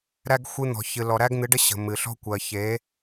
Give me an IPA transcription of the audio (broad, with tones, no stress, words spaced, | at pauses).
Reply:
ɾæ˦ɡ xʷɨ˦ n̪ɔ̤˨çɨ˨lɔ˨ ɾæ˦ɡn̪ɨ˨˦ɖə˦ ɕə̤˨mɨ˨ɬɔ̤˦kʷɜ˨ çe˨˦